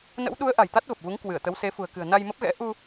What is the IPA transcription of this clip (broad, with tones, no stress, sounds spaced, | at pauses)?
n ə̰˧˥ w ɗ u˨˦ ə̯ ʔ a̤˨˩ j t̪ a˦˥ t̚ v ə˨˩ p̚ v u˨˦ ŋ k w ɨ˧˩ ə̯ t̪ ə˨˦ w s e˨˦ f ṳ˨˩ ə̯ k ɨ̤˨˩ ə̯ n a˧ j m ə˦˥ p̚ ɣ ɛ̰˧˥ ʔ u˧